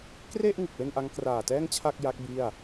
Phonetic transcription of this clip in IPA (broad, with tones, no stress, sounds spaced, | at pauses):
k r e˥˩ ʔ ŋ ɯ˨˩ k̚ w e˥˩ n ʔ a˦˥ ŋ k r aː˨˩ t ɛː˥˩ ŋ t͡ɕʰ a˥˩ k̚ j a˦˥ k̚ b i˥˩ a̯